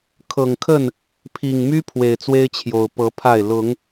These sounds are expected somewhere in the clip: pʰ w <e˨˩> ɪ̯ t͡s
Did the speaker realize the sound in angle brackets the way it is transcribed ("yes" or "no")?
yes